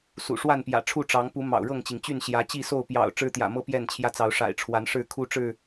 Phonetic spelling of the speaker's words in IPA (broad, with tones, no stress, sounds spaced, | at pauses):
s ṵ˨˩ ʂ w a˥˨ n p j ä̰˨˩ ʈ͡ʂʰ u˥˨ ʈ͡ʂ ɑ˨˦ ŋ p u˨˦ m ɑ̰˨˩ ʊ̯ ɻ ɤ˥˨ ŋ t͡ɕ i˩ ŋ t͡ɕ y˥˨ n ɕ j ä˨˦ t͡ɕ i˥˨ s o˥˨ ʊ̯ p j ɑ̰˨˩ ʊ̯ ʈ͡ʂ ɻ̩˦ t̪ j ä̰˨˩ m ɤ˦ p j ɛ˥˨ n t͡ɕʰ j ä˦ t͡s ɑ˨˦ ʊ̯ ʂ a̰˨˩ ɪ̯ ʈ͡ʂʰ w a˨˦ n ʂ ɻ̩˥˨ kʰ u˦ ʈ͡ʂ ɻ̩˥˨